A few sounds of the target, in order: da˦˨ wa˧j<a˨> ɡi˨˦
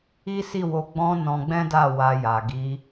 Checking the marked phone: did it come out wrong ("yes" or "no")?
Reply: no